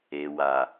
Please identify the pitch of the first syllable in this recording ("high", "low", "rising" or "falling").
low